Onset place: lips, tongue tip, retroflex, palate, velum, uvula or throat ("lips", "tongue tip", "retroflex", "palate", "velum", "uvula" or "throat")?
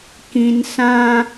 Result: velum